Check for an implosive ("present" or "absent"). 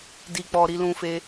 absent